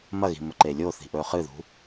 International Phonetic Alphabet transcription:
m ɐ ɣ i̤ m ɵ ǃ e lʲ o θ i̤ ʔ ɵ χ ɨ ð ṳ

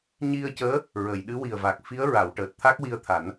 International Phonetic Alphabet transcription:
ɲ i˧ ə̯ c əː˧˥ | ɹ ə˨˩˨ j ɗ ɨ˧˥ w i˨˩ ə̯ v a˨˩ k̚ f i˧˥ ə̯ ɹ a˨˩˨ w ʈ əː˨˩ t̚ t̪ʰ a˦˥ k̚ w i˧ ə̯ t̪ʰ a˨˩˦ n

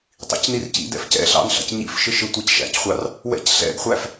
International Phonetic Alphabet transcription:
tˤ ḭ c n i r c ḭ d ɛ̰ f c ɛ̰ ɬ ɑ̰ n ɬ ɑ̰ c ɲ ḭ f ʃ ɪ ʃ ɪ tʷ æ c ʃ æ̰ c χʷ ɑ r | w ɛ̰ c ɬ ɛ̰ ɡ χʷ æ f

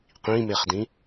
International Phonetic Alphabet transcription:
q ĩ m e χ d ĩ

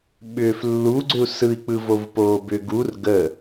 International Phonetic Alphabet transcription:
ɓ ʏː f lː u ɡ͡ǀ ʏ u̯ s ɯ i̯ k͡p ɯ v o v p oː b ʏ ɡ u r ɡ ə

